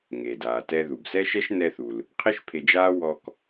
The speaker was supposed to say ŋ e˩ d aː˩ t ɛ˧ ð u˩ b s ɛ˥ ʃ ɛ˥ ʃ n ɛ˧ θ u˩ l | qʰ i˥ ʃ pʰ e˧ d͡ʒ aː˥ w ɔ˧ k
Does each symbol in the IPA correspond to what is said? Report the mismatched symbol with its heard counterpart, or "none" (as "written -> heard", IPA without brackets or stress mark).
none